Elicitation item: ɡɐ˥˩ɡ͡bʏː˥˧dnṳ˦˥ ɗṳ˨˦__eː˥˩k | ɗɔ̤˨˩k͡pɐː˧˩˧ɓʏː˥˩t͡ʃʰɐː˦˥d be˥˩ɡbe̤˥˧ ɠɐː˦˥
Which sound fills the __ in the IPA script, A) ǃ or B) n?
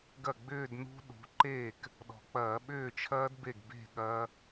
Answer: A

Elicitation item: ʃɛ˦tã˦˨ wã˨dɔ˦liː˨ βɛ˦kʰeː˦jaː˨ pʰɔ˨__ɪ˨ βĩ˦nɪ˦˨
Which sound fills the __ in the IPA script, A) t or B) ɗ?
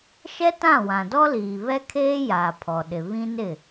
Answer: B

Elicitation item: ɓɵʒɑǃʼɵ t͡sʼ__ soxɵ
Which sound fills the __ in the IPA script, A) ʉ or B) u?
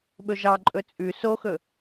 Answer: A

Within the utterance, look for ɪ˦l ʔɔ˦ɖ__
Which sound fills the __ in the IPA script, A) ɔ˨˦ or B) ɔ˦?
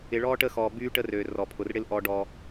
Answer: B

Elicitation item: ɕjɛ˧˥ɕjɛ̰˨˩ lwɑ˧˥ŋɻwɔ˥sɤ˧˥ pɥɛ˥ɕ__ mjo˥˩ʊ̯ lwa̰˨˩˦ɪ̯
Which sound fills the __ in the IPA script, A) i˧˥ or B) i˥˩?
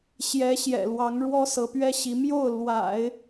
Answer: A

